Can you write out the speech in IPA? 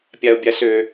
pʲ a o̯ bʲ a s ø

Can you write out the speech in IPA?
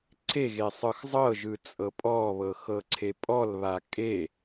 ǀʰ e ɣ e sˤ ɯ x zˤ ɤ ʒ ɯ t͡sʼ ɤ pʼ ɔ β ɤ x ɤ ǀʰ e pʼ ɔ l β a kʼ e

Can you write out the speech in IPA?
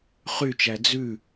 χ y t͡ʃ æ d͡z ʉ

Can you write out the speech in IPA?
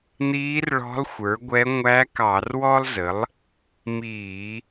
n̪ iː˧˥ r ɭ ɔ̤˧˥ lˠ xʷ ə˞˩˥ ɡʷ ɛ˧˥ ŋʷ æ˧˥ k ɑ˧˩˧ r w ɔ˥ lˠ z ə˩˥ lˠ | m iː˧˩˧

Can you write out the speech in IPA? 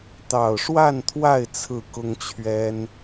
t̪ ɑ˨˩ ʊ̯ ʂ w a˥˨ n t̪ʰ w a˥˨ ɪ̯ t͡sʰ ɹ̩˥˨ k ʊ˦ ŋ t͡ɕʰ ɥ ɛ˦ n

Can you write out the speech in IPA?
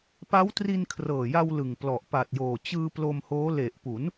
p a˦˥ w t r i˧ n kʰ r ɤː˨˩ j a˧ w l ɯ˨˩ ŋ p l ɔ˨˩ ʔ p a˨˩ t̚ j oː˨˩ t͡ɕ ɯː˧ p l o˧ m h oː˦˥ l e˨˩ ʔ p u˩˦ n

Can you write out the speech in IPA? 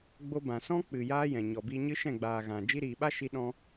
ɡ͡b o˧ b ã˨ s ɔ̃˦ k͡p ɨ˨ j aː˦ j ɛ̃˨ ɲ ɔ˨ b iː˧ ɲ ɨ˦ ʃ ɛ̃˦˨ ɡ͡b aː˨ ɣ ã˨ d͡ʒ i˧ ɾ iː˨ ɓ a˦ ʃ i˧ ɗ ɔ̃˧

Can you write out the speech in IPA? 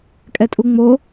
kʼ ɛ tʼ u ŋ͡m o

